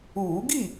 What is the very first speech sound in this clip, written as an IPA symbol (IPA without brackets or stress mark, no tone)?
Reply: uː